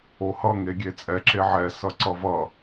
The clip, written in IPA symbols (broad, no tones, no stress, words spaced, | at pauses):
ohʌ ŋeɡʲet͡sʼɛ ǁeʕɛ sʌǀʌvʌ